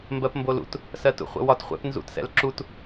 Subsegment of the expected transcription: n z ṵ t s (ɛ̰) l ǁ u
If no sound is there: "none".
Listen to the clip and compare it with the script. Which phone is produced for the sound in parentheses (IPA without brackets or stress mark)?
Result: ɛ̰